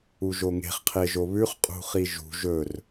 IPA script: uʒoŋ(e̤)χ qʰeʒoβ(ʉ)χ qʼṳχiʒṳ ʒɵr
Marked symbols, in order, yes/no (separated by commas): yes, yes